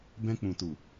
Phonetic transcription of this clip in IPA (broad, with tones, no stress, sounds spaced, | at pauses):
b ɛ̃˧ k͡p ũ˨ t u˨